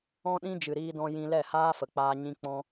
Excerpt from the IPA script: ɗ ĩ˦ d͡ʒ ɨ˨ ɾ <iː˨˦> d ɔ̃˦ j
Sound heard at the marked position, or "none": iː˦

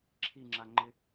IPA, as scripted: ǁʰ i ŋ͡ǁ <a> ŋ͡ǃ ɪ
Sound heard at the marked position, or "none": a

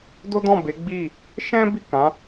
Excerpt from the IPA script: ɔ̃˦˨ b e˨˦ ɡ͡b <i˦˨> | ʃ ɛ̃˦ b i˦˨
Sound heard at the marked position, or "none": i˦˨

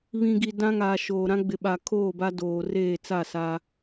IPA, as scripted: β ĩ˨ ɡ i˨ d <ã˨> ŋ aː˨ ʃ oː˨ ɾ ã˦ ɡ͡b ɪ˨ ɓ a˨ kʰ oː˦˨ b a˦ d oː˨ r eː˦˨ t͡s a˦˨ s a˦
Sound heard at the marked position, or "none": ã˦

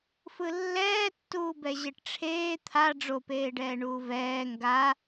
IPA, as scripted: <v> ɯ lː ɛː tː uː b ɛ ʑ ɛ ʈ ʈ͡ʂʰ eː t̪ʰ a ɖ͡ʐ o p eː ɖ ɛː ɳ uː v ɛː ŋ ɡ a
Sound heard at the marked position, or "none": f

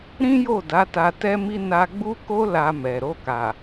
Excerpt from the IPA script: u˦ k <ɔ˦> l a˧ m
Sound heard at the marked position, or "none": o˦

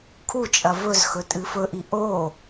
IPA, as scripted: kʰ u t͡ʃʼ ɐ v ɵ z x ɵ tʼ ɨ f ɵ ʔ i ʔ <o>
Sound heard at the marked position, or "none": o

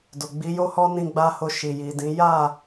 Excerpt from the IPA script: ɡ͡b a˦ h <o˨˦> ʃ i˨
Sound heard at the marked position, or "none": o˦˨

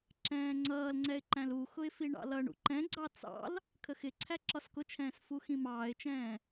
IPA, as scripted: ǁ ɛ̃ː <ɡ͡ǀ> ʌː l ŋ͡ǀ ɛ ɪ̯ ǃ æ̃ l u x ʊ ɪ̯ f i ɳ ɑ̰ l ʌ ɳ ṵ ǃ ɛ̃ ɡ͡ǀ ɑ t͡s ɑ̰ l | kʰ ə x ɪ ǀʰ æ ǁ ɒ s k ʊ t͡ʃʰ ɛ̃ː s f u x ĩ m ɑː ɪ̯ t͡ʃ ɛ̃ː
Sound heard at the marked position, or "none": ŋ͡ǀ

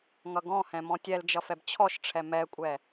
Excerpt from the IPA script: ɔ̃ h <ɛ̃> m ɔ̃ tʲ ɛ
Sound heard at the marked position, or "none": ɛ̃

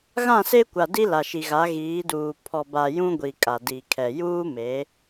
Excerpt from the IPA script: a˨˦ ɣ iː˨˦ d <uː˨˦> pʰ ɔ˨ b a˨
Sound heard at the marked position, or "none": uː˨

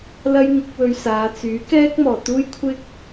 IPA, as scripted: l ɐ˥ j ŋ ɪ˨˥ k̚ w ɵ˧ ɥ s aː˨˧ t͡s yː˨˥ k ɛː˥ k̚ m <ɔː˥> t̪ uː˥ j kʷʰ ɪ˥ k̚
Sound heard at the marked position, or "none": ɔː˨˩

